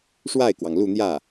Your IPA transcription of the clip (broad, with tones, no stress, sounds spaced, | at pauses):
ʂ w a˥˩ ɪ̯ k w ɑ˩ ŋ l u˥˧ n̪ j ä˥˩